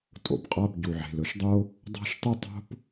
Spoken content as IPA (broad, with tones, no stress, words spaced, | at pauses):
tʼo̰˩bqʼa˥b ɟu˩ʕe̤˩lɵ˩ʃdˤo˥ | dˤa̤˥ʃtˤɨ˥tˤo̤˥p